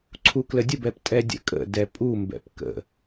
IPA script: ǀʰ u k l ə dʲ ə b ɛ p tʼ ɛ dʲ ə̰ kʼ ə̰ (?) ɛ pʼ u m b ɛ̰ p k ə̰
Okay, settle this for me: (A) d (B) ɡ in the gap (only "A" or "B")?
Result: A